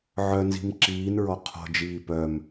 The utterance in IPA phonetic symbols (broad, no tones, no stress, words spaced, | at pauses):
ʕœnzi̤m ǁiːnɹɔ qʰɔ̤d͡ʒiː pœm